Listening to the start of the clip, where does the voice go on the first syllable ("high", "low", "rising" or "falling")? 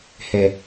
low